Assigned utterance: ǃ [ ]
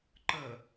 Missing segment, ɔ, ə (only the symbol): ə